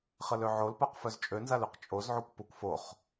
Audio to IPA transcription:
χ ə l ø ʕ o l p a q f œ z t͡ʃʼ ø n z a l ø q t͡ʃʼ o z ʕ u kʷ p u kʷ f o χ

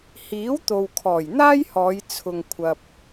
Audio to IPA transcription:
h iː˨˥ w t̪ o˨ w kʰ ɔː˨˩ j n̪ aː˥ j h ɔː˨˧ j t͡sʰ ʊ˨ ŋ kʷʰ ɐ˨ p̚

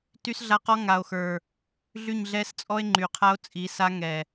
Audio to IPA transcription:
t y˦ s ɮ a˦ q ɔ˦ ŋ a˨ o̯ x ə˞˨ | ɮ y˦˨ ɲ ɮ ɛ˦ s t͡sʼ ɔ˦ e̯ ŋ͡ǃ y˨ qʰ a˦ o̯ t͡sʼ i˨˦ s a˦ ŋ ɛ˨

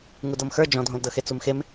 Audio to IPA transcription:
ŋ u d ɤ m x ə˞ d͡ʒ ɔ̃ dʱ õ l d ɤ x e t͡s u m x e m

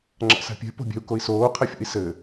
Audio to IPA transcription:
ŋ͡ǁ a̰ s a̤ pʲ ɛ̤ p o̤ bʲ ɛ̤ u̯ k o i̯ s oː qʰ ɛ fʲ ṵ i̯ s ɘ

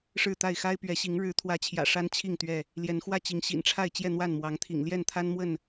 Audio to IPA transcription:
ʂ ɻ̩˥˨ t̪ a˥˨ ɪ̯ x a˦ ɪ̯ p ɥ ɛ˨˦ ɕ i˨˦ ŋ ɻ ɻ̩˨˦ t̪ʰ w ä˨˦ t͡ɕʰ j ä̰˨˩ ʂ a˦ n t͡ɕʰ i˥˨ ŋ t̪ ɥ ɛ˥˨ | l j ɛ˨˦ n x w ä˥˨ t͡ɕ i˨˦ ŋ ɕ ḭ˨˩ n ʈ͡ʂʰ a˥˨ ɪ̯ t͡ɕ j ɛ˥˨ n̪ w a˥˨ n m w ɑ˨˦ ŋ t̪ʰ ḭ˨˩ ŋ l j ɛ˥˨ n t̪ʰ a˦ n m w ə˥˨ n

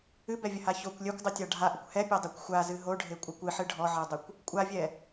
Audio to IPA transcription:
ɨ b ɛ vʲ ə h a ç o kʷ lʲ ɛ kʷ dˤ ɨ tʲ a ɖʱ a ʔ ə kʷ h ɛ pʲ ɛ dˤ ɛ kʷ xʷ a z ɨ ɦ o ɖʱ e kʷʼ a kʷ ɨ ħ ɨ ɖʱ ɔ ʕ e dˤ ə kʷ | kʷʼ a vʲ ɛ

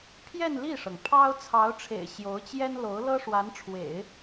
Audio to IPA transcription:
pʰ j ɛ˥˧ n l i˥˩ ʂ ɤ˩ ŋ pʰ ɑ˥ ʊ̯ t͡sʰ ɑ˧˥ ʊ̯ ʈ͡ʂʰ ḛ˨˩ ɪ̯ ɕ j o˧˥ ʊ̯ t͡ɕ j ɛ˥ n l o˧˥ ʊ̯ l ɤ˥ ʂ w a˧˥ n ʈ͡ʂʰ w ḛ˨˩˦ ɪ̯

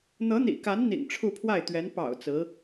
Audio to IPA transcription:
n̪ ɤ˧˥ n̪ ḭ˨˩ k a˧˥ n n̪ ḭ˨˩ ŋ ʈ͡ʂʰ u˥˧ pʰ w a˥˩ ɪ̯ t̪ ɥ ɛ˧˥ n p ɑ̰˨˩ ʊ̯ t͡s ɹ̩˧˥

